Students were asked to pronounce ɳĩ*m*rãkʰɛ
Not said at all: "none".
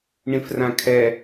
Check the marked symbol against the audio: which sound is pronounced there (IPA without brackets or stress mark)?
f